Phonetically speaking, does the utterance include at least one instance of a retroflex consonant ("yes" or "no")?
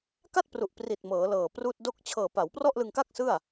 no